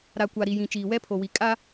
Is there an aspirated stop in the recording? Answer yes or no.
yes